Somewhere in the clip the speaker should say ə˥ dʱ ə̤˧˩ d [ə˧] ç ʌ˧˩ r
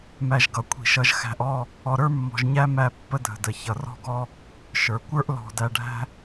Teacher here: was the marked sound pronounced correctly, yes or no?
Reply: no